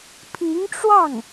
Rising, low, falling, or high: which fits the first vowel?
rising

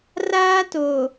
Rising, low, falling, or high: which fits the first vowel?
high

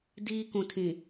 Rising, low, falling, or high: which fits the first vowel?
high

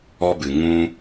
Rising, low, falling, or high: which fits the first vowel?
high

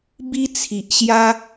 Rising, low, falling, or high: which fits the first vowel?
high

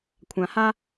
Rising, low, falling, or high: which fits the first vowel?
low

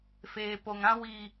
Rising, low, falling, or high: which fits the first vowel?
low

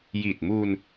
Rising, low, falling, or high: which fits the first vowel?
low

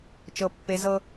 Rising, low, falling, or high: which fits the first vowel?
high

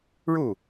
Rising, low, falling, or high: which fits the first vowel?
falling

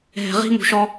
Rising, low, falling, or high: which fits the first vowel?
low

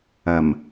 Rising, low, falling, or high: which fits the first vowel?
low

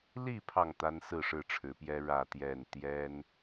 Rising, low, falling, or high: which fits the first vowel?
falling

